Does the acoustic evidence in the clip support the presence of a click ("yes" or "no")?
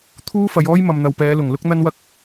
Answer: no